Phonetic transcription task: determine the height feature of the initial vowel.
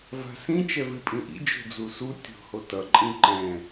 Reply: low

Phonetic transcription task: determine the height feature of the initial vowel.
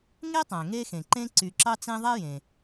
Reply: mid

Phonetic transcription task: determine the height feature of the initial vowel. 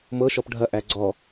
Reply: mid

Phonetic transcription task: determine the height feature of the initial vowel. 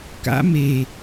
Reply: low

